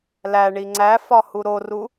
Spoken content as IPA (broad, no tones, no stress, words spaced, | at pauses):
læɳi ŋ͡ǀæfɒ huɾoru